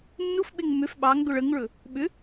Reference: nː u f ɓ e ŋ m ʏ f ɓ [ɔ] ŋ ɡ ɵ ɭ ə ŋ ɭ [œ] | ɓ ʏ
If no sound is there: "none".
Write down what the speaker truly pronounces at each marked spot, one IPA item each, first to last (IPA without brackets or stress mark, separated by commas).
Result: ɑ, ɵ